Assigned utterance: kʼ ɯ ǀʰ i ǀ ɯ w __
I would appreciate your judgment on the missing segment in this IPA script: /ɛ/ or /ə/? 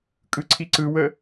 ə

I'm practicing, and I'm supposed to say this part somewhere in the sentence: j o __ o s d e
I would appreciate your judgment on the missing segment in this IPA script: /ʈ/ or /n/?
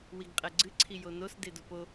n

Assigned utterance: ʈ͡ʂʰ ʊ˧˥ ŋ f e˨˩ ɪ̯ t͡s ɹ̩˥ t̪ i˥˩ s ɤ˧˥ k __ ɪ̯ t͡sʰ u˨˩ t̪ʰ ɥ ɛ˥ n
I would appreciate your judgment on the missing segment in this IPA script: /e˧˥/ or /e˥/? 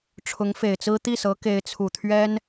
e˧˥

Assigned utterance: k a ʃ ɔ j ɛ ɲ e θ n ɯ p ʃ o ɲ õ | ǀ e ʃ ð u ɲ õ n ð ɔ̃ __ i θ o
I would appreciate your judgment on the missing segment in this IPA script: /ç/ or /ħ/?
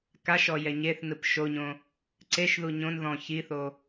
ç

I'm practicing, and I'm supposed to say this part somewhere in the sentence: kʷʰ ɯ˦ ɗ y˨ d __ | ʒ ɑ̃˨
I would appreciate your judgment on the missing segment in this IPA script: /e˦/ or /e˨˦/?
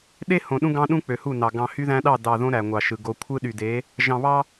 e˨˦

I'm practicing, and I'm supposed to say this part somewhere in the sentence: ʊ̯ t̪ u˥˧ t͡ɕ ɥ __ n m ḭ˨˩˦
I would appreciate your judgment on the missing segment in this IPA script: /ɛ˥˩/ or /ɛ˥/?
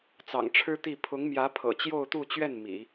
ɛ˥˩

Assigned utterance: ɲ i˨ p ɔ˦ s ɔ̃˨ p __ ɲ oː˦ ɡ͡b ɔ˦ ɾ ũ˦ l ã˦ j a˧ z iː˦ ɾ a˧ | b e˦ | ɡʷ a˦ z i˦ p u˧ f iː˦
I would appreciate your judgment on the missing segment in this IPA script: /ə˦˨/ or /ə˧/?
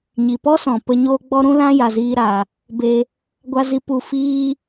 ə˧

